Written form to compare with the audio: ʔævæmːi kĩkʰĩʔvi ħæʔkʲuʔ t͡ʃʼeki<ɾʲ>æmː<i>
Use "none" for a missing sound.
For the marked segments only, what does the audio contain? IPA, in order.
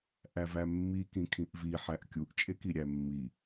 ɾʲ, i

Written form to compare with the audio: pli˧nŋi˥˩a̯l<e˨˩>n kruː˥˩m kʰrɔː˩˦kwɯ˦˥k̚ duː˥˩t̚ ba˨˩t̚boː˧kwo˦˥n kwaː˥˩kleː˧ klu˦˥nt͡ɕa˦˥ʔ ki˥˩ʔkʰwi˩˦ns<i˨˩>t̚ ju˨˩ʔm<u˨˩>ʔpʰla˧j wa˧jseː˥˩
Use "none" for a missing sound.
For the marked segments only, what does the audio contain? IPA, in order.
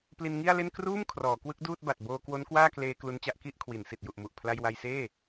e˥˩, i˨˩, u˨˩

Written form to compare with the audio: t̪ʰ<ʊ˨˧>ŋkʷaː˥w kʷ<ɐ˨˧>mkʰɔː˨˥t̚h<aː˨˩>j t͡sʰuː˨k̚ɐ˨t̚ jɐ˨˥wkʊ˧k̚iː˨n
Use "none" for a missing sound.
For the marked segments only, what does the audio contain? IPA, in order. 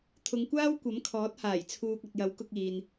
ʊ˨˧, ɐ˨˥, aː˨˩

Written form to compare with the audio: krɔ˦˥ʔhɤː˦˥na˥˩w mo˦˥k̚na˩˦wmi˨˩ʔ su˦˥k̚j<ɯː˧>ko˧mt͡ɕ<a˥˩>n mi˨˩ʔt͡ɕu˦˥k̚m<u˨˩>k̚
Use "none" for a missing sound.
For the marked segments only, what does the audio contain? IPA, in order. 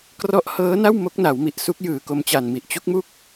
ɯː˨˩, a˨˩, u˥˩

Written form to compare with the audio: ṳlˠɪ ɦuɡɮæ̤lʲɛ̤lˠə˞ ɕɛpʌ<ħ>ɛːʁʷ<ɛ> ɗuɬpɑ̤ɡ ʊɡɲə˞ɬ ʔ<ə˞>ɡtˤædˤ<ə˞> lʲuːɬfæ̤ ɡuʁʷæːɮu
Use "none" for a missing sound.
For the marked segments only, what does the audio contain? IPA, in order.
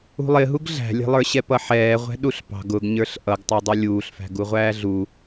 ħ, ɛ̤, ʌ, ʌ

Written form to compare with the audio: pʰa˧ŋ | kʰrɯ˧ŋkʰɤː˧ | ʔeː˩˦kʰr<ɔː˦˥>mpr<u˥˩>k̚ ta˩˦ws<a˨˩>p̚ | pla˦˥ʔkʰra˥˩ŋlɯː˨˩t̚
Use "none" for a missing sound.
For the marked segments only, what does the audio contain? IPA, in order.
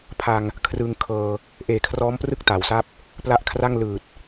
ɔː˦˥, ɯ˥˩, a˥˩

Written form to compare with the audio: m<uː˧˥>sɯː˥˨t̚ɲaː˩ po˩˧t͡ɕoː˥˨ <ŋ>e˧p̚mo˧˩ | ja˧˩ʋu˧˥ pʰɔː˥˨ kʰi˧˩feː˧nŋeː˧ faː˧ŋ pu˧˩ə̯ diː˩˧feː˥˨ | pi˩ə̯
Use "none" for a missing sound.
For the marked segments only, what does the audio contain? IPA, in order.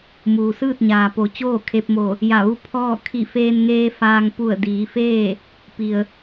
uː˩, kʰ

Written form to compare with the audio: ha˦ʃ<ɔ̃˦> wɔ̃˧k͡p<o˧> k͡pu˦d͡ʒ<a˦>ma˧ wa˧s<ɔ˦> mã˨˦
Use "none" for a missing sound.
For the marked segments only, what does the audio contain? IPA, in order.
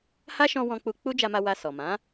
ɔ̃˧, u˧, a˧, ɔ˨

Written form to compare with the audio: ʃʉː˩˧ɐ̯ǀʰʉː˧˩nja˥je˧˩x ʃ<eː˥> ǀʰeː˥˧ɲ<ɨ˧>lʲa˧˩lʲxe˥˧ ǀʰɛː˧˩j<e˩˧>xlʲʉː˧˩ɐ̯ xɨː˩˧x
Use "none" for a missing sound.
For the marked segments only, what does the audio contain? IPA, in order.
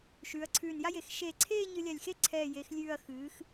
eː˧˩, ɨ˧, e˩˧

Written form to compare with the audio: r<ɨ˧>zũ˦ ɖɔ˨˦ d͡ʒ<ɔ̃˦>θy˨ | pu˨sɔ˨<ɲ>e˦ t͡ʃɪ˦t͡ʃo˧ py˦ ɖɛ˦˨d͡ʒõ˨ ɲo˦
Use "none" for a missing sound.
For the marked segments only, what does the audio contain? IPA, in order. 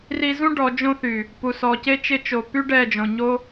i˧, õ˦, c

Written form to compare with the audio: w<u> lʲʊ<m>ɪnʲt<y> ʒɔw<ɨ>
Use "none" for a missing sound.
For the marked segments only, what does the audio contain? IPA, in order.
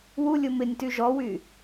u, m, y, y

